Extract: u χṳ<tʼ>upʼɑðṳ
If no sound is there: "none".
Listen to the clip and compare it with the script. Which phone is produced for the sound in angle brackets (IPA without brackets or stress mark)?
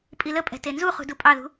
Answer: d